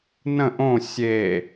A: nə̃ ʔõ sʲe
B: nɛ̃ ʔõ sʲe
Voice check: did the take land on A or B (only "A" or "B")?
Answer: A